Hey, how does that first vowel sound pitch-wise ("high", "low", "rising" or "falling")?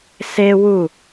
high